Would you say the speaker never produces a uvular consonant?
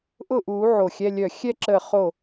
no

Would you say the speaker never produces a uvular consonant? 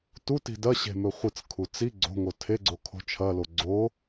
no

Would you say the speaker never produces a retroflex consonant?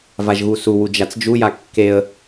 yes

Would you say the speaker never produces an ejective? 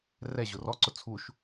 yes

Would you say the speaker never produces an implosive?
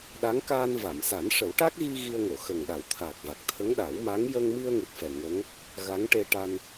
no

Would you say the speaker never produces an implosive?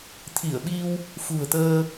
no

